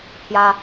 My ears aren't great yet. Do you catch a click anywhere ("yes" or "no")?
no